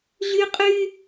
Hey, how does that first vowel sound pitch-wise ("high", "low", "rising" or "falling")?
high